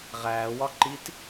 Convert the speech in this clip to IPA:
ʁæːwɒ ǃit

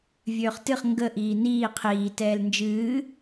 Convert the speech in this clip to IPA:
vʲøːχtɨχ ŋɡə ʔiːniː qʰiː tɛːlnd͡ʒɨː

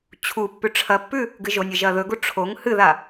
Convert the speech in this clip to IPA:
t͡ɕʰupːʉ ʈ͡ʂʰɐpːʉ | ɡɨʒonʲɨ ʒɐːðɵɡu ʈ͡ʂʰoŋ hɨða

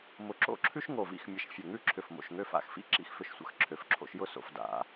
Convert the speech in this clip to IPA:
mʊ˧˩ ǁo̰˥˧ǁʰʉ˥ʃŋo˧˩vḭ˥˧x mʲə˧˩ʃfʲə˧˩ŋʉ˥˧ǁʰʏ˧˩f mo̰˧˩ʃŋø˧fa̰˧˩xfḭ˥ ǁḭ˧xfʏ˧ʃsʷə̰˧˩x ǁʰø˩˧fǁʰo̰˧ʃjʊ˥˧so̰˩˧f da̰˩˧

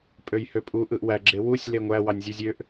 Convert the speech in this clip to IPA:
pʼøjhøpʼu ʔɯʔwæ ɡ͡ǁewusʲ leŋʷæ wɑnʲzʲɯzʲøʔ

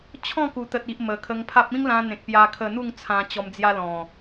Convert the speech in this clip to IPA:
t͡ɕʰɔ̃˥˧ku˨˩t̪ə˨t̚i˨ʔ mə˨˩kʰə˧ŋpʰa˦p̚ ĩ˦ŋlã˧n̪ẽ˨k̚ pja˧kʰə˧n̪u˥˧ŋ t͡sʰã˧t͡ɕɔ˧md͡zja˦ lɔ̃˨˩

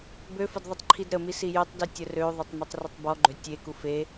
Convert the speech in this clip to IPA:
bøfəd ðˤitˤǃʰidɾəmi sijøtˤdi tʲərøðˤetˤ mitˤrətˤbɔɡ͡ǃø tʲeku fe

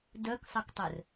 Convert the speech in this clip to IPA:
dœksˤʌktˤœr

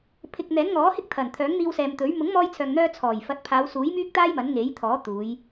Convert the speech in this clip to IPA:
pʰɪ˨k̚ n̪ɛː˨˥nŋɔː˨˥hɪ˥k̚ t̪ʰɐ˨˩nt̪ʰœː˨˥ŋn̪iː˧wsɛː˨m t̪ɵ˨˥ɥ mʊ˨˥ŋmɔː˧jt͡sʰœː˨ŋn̪œː˧ t͡sʰɔː˨˩j fɐ˨˥t̚pʰaː˨˧wsuː˨˥j myː˥k̚t̪aː˥j mɐ˨˥nŋe˨˥j t̪ʰɔː˨˥t̪uː˨˧j

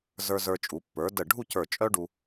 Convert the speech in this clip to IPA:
zə˞˧zə˞˧t͡ʃʼu˩˧ pːə˞˩˧də˧˩ ɖʱu˥˧cə˞˧˩ t͡ʃʼœ˥ɖu˧

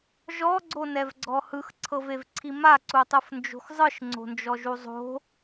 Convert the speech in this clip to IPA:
ʒɔɡ͡ǀonɛvɡ͡ǀɔ hɯxǀʰɤvevǀʰi maǀutˤɯfnd͡ʒo̤x zˤɯʃŋ͡ǀo̤nd͡ʒɔʒu zˤo̤

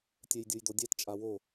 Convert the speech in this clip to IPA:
tʲɛjdʲɯjdodʲɛt t͡ʃʼawo

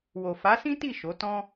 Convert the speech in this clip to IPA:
wo˨fa˨˦sĩ˦ti˦˨ ʃo˨˦ tɔ̃˦

